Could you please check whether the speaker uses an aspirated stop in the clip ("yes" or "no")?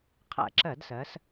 yes